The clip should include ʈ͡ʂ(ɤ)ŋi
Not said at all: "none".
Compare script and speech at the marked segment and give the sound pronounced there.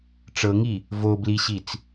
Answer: ɤ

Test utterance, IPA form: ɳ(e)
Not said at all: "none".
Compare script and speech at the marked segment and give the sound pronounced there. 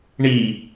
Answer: i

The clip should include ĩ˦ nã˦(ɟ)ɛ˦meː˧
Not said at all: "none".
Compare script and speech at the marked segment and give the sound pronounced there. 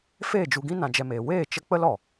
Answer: d͡ʒ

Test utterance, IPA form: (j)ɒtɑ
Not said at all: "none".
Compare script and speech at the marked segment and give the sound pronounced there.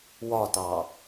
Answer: w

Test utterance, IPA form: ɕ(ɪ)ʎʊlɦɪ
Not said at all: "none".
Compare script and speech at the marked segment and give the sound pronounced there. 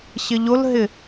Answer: ɪ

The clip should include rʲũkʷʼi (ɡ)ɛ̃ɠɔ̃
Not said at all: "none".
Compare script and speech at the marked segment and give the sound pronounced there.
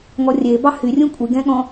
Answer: ɡ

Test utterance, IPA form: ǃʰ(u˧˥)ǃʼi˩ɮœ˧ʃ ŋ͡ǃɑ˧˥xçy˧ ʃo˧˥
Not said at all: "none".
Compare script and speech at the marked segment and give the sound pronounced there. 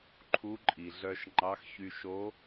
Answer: u˧˥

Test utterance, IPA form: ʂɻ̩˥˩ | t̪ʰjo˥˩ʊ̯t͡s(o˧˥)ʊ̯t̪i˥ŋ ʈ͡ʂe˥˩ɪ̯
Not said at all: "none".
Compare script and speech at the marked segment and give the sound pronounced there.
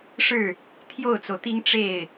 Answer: o˩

